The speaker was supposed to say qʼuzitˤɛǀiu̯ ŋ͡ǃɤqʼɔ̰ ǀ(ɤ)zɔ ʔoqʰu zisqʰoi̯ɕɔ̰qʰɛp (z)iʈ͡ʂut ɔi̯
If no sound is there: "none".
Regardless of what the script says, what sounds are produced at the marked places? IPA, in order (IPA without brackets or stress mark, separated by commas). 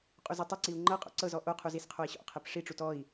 ɤ, ʂ